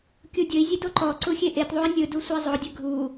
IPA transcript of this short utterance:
kʲ u dʲ ɵ i̯ zʲ e d o ǃ ɔ ǀ u xʲ e ʔ e t ðˤ u i̯ nʲ ɯ d u sʷ e zˤ o dʲ ɘ ɡʱ u

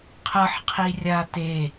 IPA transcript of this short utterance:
qʰ ʌ ħ qʰ i rʲ a t e

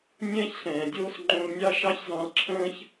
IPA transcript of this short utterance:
nʲ ɛ̃ː˦ ç ɬ ɛ̃ː˨ dʲ oː˦ s ŋ͡ǃ õ˧ l nʲ ɑ˦ ʃ ɑ˦ ç z ɑ̃˧ l ǁʰ ə̃ː˦ ç

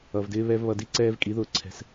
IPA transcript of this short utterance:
ʌ˨ v d ɪː˧ β ɛ˧ v β ʌ˧ d i˦ ǀ ɛː˦ v kʼ i˨˦ ð ʊː˧ ǀʰ ɛ̤˧ s

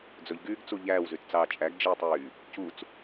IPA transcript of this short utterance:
d͡z ɵ ʎ ɡ yː ɡ t͡s u ʎ æː w z y t t͡s ɑː t͡ʃʼ æ ɡ d͡ʒ e w tˤ yː | c u t͡s

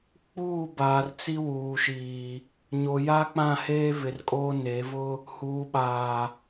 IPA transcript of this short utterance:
k͡p uː˦˨ b aː˨ r t͡s i˦ w uː˨ ʃ iː˨ | ɲ o˨ j a˦ k͡p ã˦˨ h eː˦ v ɪ˨ r kʼ oː˦ n e˨˦ v ʊ˦ | h uː˨ ɓ aː˨

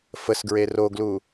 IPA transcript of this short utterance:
f ə s ɡ ɹ e r o ɡ l u

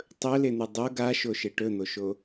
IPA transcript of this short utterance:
tˤ ɵ l e n̪ ʉ dˤ o ɡ a ʃ o ʃ e ʈ ɵ n̪ o ʃ o

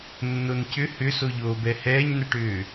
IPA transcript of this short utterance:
nː o n c ʏ h ʏ s o ʎ oː b ɛ h ɛː ɲ n ɛ ʈ ʏː

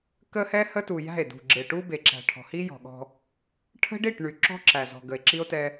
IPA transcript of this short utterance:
k ə˦ h ɛ˦ h ə˦ t u˨ j æ̤˦˨ e̯ d ṳ˨ ɡ͡ǁ e˨ ʈ u˦ b e˨ ǁ æ̤˨ ʈʰ ɔ̤˨ h i˦ j ɔ̤˨ ɠ ɔ̤˦ | ʈʰ ə̤˦ ɖ i˦˨ ʈ ɳ y˨ ǁ ɔ̤˦ ǁ æ˨ z ɔ̤˨ ɡ ə˨ e̯ ǁ i˦ o̯ t ɛ˦

